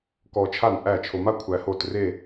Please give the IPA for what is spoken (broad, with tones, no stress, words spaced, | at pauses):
kɔ˧t͡ʃʰa˥˩nʔæ˥˩t͡ʃʰo˧ ma˥˧ kʷʰæ˧ho˥˩t re˥˧